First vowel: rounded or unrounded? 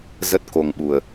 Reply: unrounded